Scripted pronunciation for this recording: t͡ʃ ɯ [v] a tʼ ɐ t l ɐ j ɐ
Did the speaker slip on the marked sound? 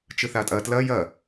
yes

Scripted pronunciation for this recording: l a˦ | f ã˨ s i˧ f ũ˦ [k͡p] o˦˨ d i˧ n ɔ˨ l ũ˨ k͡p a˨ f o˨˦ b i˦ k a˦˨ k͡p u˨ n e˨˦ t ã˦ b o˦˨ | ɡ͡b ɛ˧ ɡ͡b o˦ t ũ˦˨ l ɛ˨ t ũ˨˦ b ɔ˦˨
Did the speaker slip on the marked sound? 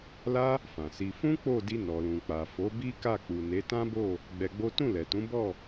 no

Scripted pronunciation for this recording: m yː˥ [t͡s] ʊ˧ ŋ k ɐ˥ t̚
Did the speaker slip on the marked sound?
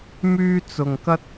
no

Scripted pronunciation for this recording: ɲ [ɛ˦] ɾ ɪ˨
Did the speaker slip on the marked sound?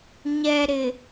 yes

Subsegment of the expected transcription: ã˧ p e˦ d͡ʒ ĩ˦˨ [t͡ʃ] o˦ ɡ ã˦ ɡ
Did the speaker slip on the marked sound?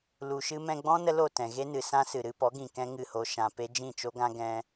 no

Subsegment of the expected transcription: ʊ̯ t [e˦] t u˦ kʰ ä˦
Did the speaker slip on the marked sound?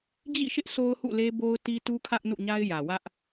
yes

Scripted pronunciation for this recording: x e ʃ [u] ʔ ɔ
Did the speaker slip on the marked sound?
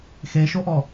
yes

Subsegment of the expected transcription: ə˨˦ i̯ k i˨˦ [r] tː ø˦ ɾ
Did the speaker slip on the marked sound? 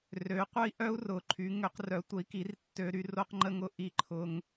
no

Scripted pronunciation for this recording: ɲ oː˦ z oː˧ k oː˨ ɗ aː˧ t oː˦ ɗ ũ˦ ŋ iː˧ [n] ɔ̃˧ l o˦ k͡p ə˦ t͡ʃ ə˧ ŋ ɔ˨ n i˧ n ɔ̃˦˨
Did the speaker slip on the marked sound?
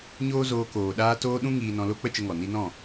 no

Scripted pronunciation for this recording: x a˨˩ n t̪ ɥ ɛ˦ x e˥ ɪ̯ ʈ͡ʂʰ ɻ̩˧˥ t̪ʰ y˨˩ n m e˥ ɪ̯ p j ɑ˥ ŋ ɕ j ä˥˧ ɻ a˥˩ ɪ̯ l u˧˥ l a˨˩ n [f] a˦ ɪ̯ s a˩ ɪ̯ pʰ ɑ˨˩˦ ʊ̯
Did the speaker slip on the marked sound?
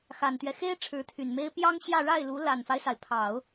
no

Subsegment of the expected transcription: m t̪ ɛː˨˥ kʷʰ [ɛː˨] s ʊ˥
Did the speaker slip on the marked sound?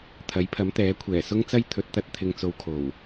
yes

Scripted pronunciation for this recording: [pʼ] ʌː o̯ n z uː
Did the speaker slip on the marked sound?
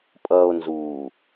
no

